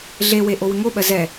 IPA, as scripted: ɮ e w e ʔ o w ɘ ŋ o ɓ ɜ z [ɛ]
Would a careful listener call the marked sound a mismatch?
no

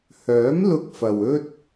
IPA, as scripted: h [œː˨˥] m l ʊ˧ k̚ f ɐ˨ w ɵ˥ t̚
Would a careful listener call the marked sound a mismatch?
no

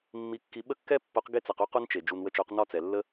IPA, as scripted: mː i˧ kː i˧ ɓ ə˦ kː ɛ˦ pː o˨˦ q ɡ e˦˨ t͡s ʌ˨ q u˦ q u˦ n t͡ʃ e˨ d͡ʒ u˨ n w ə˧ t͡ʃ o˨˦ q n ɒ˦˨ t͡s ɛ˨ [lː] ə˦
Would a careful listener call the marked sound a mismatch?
no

